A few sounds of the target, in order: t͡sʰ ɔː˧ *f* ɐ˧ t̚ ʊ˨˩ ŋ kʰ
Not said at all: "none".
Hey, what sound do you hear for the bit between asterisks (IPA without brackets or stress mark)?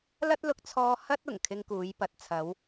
h